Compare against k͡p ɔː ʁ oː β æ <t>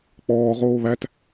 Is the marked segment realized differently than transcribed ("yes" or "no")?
no